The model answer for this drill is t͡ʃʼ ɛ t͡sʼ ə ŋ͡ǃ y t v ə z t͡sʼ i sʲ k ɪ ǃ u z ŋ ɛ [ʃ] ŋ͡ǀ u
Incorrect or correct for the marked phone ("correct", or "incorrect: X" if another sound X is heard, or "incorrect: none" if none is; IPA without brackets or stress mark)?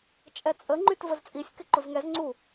incorrect: z